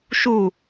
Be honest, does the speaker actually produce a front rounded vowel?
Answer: no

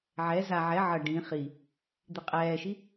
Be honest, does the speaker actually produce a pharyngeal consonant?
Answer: yes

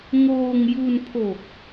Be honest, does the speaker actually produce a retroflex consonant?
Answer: no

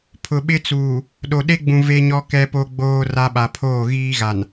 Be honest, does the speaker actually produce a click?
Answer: no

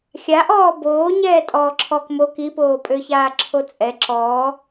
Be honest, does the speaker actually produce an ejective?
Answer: yes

